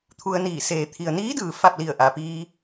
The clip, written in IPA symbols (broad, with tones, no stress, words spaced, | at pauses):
t̪ʰu˧ə̯niː˧˩ seː˩t̪ʰi˩ə̯niː˧˥dɯː˩ fa˥˨p̚li˧˩ə̯ ʔa˩piː˧